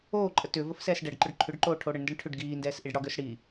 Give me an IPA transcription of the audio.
oː ǃʼ ə t ʏː v ə f s ɛː s ɖ ɛ ɖ ǃ ʏ ɖ ǃʰ ʏ ɖ ǃ oː ʈʰ o ɽ ə ɳ n d ɛ ɳ ʈʰ ʏ ɖ ɡ iː n d ɛː s ʔ i ɖ ɽ ɒ ɡ ʏː s ɽ i

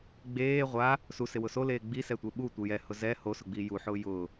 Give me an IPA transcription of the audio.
ɡ͡b eː ʁʷ a | s u s ɪ w ʊ s o l eː ɡ͡b i s ɛ tʷ e ɓ u tʷ ɪ j ɛ h ʊ z ɛ h o s ʊ ɡ͡b i j u ħ ʊː j ʊ

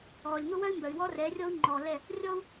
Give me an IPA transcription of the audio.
ɔː˨ lʲ ŋ ʊ˦ w œ˦ y̯ m b œ˨ y̯ w ɔ˦ r ɛ˨˦ rʲ ɔ˦ u̯ ŋ͡ǃ ɔː˨ l ɛ˦˨ | rʲ ɔ˦ u̯

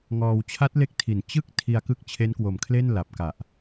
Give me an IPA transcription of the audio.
ŋ ɔː˧ w t͡ɕʰ a˦˥ t̚ l e˦˥ k̚ tʰ i˨˩ n t͡ɕ ɯ˥˩ k̚ tʰ i˧ a̯ k ɯ˦˥ k̚ t͡ɕʰ e˦˥ n k w o˨˩ m kʰ l e˥˩ n l a˨˩ p̚ k a˨˩ ʔ

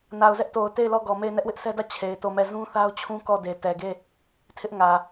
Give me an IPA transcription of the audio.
n a˨ ʊ̯ z ɛ˦ ʔ t o˨ ʊ̯ t e˦˨ ɪ̯ l ɔ˦˨ ɡ ɔ˨ m e˦˨ ɪ̯ n ɛ˦ ʔ w ɪ˦ ʔ s ɛ˦ d ä˦˨ t͡ɕʰ e˨ ɪ̯ t o˦˨ m ɛ˦˨ z ũ˦ θ a˦ ʊ̯ t͡ɕʰ ũ˦ k ɔ˦˨ d e˨ t ɛ˨ ɡ e˦˨ | tʰ ɪ˦ ʔ ŋ ä˨

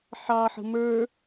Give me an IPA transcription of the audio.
ħ ɑ ħ ə̤ m ə˞

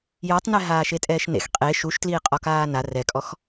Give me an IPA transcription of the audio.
j ɔ tˤ n ɛ ɦ aː ʃ e tʼ ɛː ʃ n ḛ x qʼ e ʃ u ʃ t l iː qʼ ɔ k aː n a r ɛ kʼ ɔ x

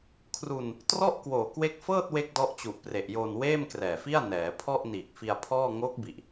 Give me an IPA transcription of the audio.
kʰ r u˧ n | t r ɔ˥˩ ʔ k w oː˨˩ k w e˦˥ k̚ f ɤː˥˩ t̚ w e˥˩ k̚ d ɔ˦˥ ʔ t͡ɕ u˨˩ ʔ p r e˨˩ ʔ j oː˧ n w eː˥˩ m k r ɛː˨˩ f i˥˩ a̯ n ɛː˩˦ pʰ ɔ˥˩ ʔ n iː˨˩ k̚ f i˧ a̯ pʰ ɔː˥˩ ŋ oː˦˥ k̚ b i˨˩ ʔ

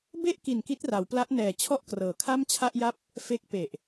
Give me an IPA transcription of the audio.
b e˥˩ ʔ k i˨˩ n k i˦˥ t̚ r a˩˦ w p l a˦˥ ʔ n ɛː˨˩ t͡ɕʰ ɔ˥˩ ʔ k r ɤː˩˦ kʰ a˥˩ m t͡ɕʰ a˥˩ ʔ j a˥˩ p̚ | f e˦˥ k̚ p e˨˩ ʔ

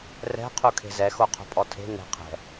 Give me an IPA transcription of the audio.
r ɛ̤ qʰ u kʰ e̤ z ɛ x o qʰ o̤ pʼ ɔ tʰ e̤ n e̤ qʰ ɛ̤

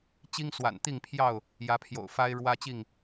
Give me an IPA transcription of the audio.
t͡ɕ i˦ ŋ s w a̰˨˩ n t̪ i˥˨ ŋ pʰ j ɑ˥˨ ʊ̯ | j ä˨˦ pʰ j o̰˨˩ ʊ̯ f a˦ ɪ̯ ɻ w ä˦ t͡ɕ i˥˨ ŋ

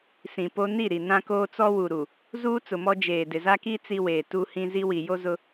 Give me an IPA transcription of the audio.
s ĩ˨ p o˦ n i˦˨ ɾ i˨ n ã˦ k oː˦ t͡s ɔ˦ w u˨ ɾ u˨ | z uː˦ t͡s ʊ˨ m ɔ˦ d͡ʒ eː˨ d ɪ˨ z a˦ k i˦ t͡s i˦ w eː˨ t u˦ h ĩ˦ z i˦ w i˨ j o˦ z ʊ˦

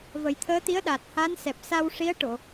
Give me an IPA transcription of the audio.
v ə˨˩˦ j t̪ʰ əː˧˥ t̪ i˧˥ ə̯ ɗ a˨˩ t̚ h a˧˥ n s ɛ˨˩ p̚ s a˧ w ʂ i˧˥ ə̯ ʈ o˨˩˨

